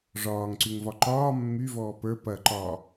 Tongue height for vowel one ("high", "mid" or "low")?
low